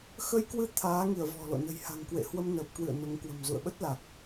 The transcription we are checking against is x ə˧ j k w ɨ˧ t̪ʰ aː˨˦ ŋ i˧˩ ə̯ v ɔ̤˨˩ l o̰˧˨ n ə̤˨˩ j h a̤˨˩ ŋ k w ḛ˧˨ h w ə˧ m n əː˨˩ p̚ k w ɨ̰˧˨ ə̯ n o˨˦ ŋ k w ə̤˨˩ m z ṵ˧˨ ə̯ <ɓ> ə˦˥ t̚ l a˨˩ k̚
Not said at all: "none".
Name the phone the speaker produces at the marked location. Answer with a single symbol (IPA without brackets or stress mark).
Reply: ɓ